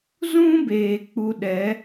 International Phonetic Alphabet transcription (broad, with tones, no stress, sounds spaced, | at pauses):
z ũ˦ b eː˨ k͡p u˧ ɗ ɛ˨˦